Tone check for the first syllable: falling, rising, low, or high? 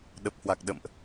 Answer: low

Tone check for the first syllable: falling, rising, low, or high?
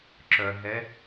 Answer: low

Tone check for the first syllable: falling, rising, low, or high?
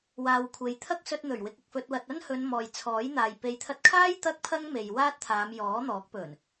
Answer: low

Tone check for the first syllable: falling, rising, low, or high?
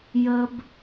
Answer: low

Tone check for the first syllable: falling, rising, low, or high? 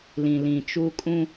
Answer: low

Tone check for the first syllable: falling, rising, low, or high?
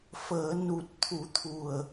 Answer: low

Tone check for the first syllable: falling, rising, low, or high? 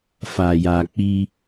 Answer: low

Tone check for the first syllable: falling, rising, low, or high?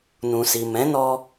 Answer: low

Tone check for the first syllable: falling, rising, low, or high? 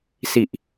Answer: low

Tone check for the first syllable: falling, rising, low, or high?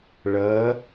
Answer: rising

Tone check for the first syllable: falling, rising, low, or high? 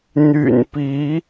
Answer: low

